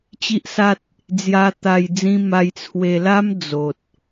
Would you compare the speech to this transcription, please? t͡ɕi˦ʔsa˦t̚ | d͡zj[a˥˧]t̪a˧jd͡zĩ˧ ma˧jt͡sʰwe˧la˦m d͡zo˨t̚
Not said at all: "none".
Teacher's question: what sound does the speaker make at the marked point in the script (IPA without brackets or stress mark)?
a˧